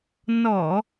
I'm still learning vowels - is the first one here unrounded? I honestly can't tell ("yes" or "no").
no